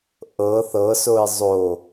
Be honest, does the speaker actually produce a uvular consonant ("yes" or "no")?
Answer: no